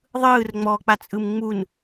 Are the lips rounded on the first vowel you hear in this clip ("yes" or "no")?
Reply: no